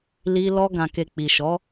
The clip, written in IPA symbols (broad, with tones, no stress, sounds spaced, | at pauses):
l i˧ l ɔ˧ ɡ ã˨ k e˨ k͡p i˨ ʃ ɔ˨˦